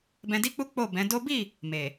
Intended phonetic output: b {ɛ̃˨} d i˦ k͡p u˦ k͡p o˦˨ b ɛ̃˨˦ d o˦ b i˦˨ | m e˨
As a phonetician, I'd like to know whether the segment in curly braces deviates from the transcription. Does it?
yes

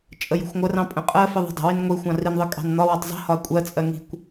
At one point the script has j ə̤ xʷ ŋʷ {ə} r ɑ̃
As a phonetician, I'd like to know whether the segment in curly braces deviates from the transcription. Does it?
no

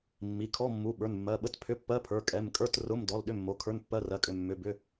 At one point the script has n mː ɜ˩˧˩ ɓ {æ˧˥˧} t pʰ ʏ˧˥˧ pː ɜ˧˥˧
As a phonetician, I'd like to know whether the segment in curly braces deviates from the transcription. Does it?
yes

